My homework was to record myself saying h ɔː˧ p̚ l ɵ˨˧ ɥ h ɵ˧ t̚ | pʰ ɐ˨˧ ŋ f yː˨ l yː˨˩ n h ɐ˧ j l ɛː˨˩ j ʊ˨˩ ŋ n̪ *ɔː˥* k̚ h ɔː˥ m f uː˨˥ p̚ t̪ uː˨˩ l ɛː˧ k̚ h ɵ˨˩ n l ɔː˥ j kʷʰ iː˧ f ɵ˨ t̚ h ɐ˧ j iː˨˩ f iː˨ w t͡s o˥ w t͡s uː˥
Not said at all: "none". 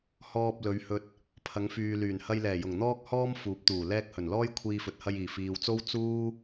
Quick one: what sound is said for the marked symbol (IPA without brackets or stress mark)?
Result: ɔː˥